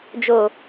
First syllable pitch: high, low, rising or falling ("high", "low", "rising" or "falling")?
low